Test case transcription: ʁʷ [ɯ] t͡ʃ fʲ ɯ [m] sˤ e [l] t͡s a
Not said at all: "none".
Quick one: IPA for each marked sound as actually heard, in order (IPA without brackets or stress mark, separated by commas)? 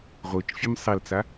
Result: ɯ, m, l